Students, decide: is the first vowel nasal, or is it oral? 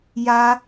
oral